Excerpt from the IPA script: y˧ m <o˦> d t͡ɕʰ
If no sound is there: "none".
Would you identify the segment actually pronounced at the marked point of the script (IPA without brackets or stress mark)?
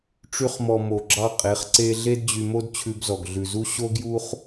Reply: o˦